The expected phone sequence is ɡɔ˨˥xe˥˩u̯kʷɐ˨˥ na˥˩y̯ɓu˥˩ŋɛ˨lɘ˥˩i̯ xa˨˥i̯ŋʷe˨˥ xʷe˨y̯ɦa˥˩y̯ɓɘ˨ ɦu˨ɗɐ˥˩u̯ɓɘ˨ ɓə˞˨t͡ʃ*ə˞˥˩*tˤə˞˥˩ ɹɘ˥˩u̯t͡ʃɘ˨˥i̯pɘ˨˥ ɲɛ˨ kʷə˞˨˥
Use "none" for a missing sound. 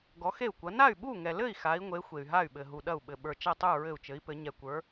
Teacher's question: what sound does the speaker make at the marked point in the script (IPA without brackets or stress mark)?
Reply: ɐ˥˩